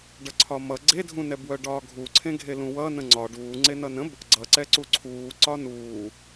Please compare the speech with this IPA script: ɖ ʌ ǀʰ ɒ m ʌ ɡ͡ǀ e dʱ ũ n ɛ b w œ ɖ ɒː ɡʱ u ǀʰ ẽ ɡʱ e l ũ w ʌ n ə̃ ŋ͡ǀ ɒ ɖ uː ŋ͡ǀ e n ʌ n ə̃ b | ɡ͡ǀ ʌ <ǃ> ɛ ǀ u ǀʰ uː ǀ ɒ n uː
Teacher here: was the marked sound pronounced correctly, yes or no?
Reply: no